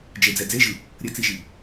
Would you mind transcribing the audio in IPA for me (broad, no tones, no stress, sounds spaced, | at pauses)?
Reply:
d͡ʒ e d͡z ɛ d͡z e ʒ ɯ | ɾʲ ə t͡s i ʒ i